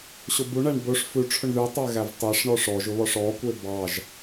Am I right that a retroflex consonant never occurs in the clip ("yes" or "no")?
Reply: no